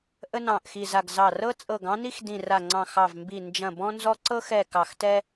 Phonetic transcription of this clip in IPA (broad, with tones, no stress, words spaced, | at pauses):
ʔə˦nɑ̃˧˩ʔxi˧˩ za˧˩ɡzɑ˧˩ rɤ˦t͡sʼɤ˧˩ɡ ɑ̃˦ni˦x dĩ˧˩ra˧˩ŋ͡ǀɑ̃˧˩ xɑ˧˩vmbi˧˩ nd͡ʒɐ̃˧˩bɔ̃˦nzɔ˦ ǀɤ˦xɛ˧˩ kɑ˧˩xtɛ˦